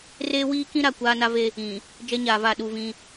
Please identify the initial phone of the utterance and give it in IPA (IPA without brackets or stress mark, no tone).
r